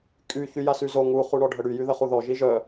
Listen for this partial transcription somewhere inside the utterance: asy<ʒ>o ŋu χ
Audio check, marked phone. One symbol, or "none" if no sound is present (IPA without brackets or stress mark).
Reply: z